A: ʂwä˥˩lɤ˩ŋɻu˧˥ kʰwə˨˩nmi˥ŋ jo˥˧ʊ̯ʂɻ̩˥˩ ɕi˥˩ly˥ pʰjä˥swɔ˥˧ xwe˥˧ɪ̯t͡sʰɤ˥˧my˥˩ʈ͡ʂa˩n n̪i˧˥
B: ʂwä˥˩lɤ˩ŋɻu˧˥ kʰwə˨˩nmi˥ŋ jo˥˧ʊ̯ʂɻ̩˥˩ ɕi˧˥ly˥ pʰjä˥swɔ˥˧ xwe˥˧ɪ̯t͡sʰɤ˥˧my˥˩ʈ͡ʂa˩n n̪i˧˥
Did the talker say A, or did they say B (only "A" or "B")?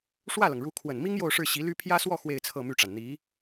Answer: B